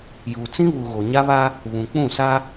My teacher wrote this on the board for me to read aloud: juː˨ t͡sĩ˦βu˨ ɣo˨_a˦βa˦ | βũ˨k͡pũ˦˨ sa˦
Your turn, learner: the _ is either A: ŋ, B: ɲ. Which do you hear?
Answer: B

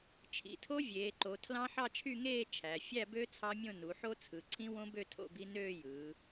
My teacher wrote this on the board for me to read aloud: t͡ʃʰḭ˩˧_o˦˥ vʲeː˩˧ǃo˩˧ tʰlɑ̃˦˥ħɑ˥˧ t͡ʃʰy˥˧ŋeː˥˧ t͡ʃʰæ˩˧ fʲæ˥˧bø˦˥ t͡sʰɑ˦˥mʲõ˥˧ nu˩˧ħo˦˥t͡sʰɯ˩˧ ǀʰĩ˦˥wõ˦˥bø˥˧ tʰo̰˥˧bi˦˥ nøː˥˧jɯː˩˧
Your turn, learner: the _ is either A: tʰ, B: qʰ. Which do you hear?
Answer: A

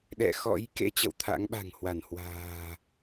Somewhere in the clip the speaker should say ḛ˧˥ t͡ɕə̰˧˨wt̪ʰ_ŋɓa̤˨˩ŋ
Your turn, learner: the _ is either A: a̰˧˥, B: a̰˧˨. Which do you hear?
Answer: A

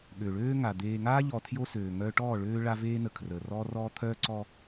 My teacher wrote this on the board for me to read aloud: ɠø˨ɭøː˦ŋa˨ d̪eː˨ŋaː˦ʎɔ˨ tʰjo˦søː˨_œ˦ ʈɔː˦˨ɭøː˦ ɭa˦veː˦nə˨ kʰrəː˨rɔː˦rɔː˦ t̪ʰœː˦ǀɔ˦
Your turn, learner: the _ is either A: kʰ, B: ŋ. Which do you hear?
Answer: B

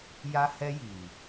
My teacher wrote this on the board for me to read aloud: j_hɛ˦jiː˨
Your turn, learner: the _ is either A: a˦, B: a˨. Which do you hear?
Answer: A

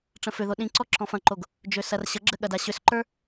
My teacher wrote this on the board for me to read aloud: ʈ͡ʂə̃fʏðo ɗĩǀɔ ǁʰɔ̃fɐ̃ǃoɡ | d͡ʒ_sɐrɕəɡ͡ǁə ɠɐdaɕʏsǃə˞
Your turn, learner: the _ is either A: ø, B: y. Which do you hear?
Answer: A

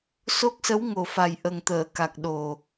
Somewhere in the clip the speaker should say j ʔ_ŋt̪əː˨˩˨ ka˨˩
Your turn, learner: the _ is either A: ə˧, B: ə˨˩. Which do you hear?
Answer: B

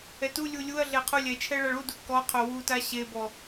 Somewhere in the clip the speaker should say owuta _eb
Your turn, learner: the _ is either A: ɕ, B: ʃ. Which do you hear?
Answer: A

